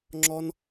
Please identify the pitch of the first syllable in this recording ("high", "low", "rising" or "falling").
high